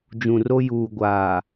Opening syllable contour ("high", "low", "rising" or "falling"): low